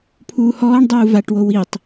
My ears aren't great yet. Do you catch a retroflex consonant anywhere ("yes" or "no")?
yes